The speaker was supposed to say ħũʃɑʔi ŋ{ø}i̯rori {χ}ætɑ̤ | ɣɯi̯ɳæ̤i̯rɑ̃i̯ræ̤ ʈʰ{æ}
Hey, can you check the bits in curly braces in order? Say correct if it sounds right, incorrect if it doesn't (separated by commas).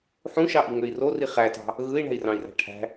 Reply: correct, correct, incorrect